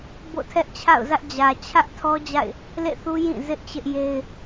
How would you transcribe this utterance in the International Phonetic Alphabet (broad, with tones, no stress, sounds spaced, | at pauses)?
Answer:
b o̰˦˨ tʰ ɛ˦ ʔ t͡ɕʰ a̰˦˨ ʊ̯ z ä˦ ʔ d͡ʑ ä˨ t͡ɕʰ ä˦ ʔ tʰ ɔ˦ d͡ʑ a̰˦˨ ɪ̯ | l ḛ˦˨ θ u˦ j ĩ˦˨ z ɪ˦ ʔ t͡ɕ ɪ˦ ʔ j e˦ ɪ̯